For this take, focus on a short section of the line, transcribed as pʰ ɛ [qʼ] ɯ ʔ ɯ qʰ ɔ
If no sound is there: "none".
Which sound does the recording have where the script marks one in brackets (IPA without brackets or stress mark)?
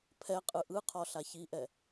qʼ